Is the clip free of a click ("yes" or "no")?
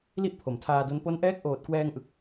yes